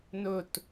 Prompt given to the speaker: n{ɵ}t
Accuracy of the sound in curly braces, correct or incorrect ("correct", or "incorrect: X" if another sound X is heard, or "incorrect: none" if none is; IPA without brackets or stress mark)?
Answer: correct